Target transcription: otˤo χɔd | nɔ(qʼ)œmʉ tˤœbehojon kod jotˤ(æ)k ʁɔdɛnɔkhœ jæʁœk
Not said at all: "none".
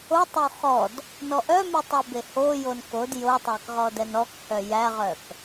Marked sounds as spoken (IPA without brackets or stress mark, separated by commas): ʔ, æ